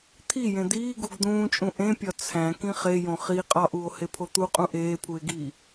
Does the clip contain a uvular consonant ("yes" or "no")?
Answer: yes